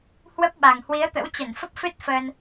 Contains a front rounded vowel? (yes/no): no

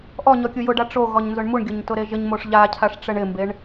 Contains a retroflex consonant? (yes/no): yes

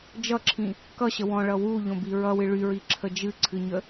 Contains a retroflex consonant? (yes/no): yes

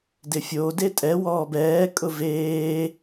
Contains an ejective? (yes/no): yes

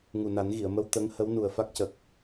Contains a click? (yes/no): no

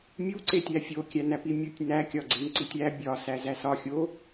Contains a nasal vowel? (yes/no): no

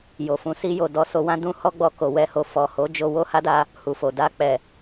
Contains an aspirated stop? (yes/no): no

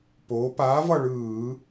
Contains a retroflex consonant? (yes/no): yes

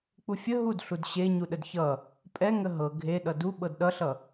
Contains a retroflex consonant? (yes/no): no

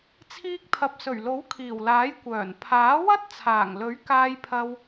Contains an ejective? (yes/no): no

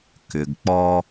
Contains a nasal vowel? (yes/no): no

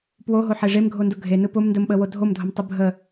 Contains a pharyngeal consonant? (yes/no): yes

